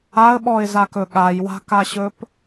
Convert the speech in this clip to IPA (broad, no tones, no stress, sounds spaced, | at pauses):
a ə̯ ɓ ɔ ɪ̯ z a k ɵ ɠ a j w a̤ k a ɕ ɵ p